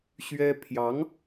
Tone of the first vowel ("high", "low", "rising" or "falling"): high